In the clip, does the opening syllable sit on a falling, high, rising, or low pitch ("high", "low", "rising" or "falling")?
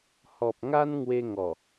low